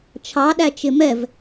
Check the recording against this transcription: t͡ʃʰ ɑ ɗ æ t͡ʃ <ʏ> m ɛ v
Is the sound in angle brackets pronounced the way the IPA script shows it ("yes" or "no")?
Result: no